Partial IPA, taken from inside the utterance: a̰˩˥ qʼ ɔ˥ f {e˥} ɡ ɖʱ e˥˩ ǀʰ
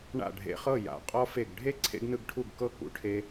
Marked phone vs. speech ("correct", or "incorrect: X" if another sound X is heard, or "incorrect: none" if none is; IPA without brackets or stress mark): incorrect: e˥˩